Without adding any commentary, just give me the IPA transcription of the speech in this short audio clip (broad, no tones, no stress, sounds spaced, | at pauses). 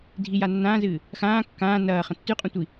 dʱ i j a nː ãː z ɨː | x ãː kː ãː n ɐː χ ɐ̃ tː ʉ qʼ ũ tʷ i